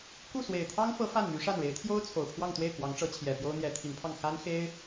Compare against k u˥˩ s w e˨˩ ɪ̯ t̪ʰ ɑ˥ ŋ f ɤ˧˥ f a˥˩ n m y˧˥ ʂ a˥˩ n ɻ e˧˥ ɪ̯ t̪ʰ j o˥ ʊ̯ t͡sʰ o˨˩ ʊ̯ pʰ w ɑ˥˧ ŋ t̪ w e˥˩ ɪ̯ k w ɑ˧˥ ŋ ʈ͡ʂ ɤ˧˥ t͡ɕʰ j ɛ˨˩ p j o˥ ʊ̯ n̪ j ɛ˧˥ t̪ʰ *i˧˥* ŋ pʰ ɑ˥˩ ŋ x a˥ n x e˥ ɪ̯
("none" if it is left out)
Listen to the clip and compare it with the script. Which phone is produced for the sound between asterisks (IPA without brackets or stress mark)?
i˧˥